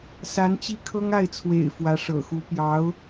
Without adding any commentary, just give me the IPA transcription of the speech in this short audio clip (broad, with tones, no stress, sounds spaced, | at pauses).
s a˧˥ n t͡ɕ i˥ kʰ ɤ˥ ŋ a˥˩ ɪ̯ t͡sʰ w ḛ˨˩ ɪ̯ f w ä˧˥ ʂ ɤ̰˨˩ x u˧˥ p j ɑ˧˥ ʊ̯